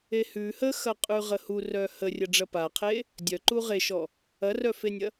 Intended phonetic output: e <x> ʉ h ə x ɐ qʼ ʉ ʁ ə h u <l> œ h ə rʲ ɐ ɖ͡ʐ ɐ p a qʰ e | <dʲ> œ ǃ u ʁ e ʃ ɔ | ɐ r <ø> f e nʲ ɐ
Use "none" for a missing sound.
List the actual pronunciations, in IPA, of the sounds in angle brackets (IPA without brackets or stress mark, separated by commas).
h, r, dʲ, œ